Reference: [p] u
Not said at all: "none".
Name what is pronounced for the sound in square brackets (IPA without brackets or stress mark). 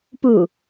p